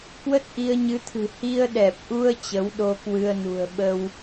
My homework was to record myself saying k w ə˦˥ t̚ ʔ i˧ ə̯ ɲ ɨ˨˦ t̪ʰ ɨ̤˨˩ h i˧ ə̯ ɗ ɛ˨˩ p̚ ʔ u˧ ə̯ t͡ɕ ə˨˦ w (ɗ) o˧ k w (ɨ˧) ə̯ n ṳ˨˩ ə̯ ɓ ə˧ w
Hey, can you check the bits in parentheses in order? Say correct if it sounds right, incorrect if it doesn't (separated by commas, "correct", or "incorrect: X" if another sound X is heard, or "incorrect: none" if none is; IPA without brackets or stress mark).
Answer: correct, correct